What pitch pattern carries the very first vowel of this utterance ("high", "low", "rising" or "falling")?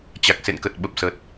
low